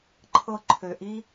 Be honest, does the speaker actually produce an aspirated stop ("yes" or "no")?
yes